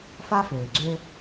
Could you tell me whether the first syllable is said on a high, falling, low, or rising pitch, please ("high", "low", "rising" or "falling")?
high